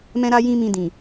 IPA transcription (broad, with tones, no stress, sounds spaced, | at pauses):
m ɛ̃˦ ɾ a˦ j ĩ˦ m ĩ˧ d ĩ˨